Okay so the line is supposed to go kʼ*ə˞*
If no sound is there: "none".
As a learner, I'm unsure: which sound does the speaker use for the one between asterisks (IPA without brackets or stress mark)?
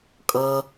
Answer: ɤ